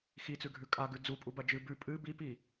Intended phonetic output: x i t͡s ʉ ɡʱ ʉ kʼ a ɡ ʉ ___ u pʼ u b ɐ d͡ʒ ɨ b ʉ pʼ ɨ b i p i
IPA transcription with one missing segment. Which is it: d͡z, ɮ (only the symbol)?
d͡z